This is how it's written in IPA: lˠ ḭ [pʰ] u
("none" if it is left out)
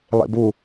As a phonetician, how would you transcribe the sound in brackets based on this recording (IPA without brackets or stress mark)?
b